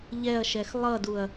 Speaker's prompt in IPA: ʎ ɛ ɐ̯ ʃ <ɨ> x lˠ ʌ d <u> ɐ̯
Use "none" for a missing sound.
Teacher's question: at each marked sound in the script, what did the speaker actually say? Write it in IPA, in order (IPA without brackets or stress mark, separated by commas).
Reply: ɛ, u